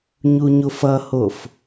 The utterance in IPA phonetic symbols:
ɲ u ɲ o f ʌ h o f

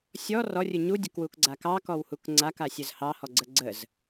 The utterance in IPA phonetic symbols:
sʲ ɔ r ɔ rʲ u ɲ u dʲ ə k w u k ɡ͡ǀ a k ɑ k ɔ w h u k ŋ͡ǀ a k a sʲ ə z h ɑ h ɔ ɡ͡ǀ ə ɡ͡ǀ ə z

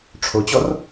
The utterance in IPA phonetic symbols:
ʈ͡ʂʰ o t͡ɕ ɔ r

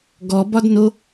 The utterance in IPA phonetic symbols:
ɡ ɔ b ɒ d n o

